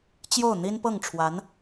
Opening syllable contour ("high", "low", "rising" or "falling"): falling